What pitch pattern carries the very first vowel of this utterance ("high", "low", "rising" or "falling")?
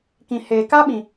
low